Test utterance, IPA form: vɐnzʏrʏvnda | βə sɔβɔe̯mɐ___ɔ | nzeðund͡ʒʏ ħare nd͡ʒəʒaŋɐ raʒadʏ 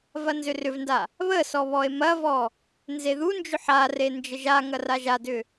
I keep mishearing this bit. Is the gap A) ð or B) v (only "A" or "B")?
B